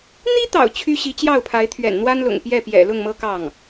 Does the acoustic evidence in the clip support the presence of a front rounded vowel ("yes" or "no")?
yes